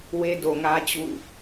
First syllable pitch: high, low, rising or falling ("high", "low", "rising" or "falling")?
high